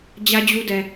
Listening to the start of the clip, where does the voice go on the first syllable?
high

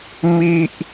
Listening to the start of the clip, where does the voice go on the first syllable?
high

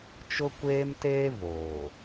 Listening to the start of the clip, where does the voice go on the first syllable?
high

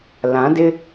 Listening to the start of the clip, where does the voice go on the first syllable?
rising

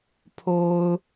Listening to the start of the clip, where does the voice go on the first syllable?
high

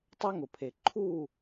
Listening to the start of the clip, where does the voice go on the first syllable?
high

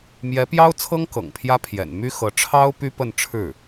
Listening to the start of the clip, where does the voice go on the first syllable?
rising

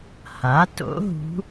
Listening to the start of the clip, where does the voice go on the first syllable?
rising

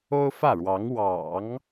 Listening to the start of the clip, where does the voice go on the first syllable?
high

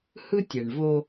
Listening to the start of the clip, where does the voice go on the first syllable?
high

